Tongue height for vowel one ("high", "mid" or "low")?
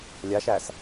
low